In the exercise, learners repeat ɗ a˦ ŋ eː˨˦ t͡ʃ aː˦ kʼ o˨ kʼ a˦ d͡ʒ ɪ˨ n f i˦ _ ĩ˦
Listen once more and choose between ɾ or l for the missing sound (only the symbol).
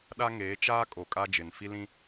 l